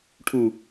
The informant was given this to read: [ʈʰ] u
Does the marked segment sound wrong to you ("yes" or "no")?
no